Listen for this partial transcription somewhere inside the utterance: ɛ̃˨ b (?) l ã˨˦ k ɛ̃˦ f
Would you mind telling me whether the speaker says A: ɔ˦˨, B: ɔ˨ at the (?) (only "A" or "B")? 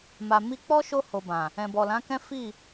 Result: B